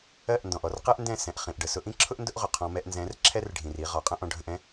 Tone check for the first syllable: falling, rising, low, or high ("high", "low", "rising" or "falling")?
falling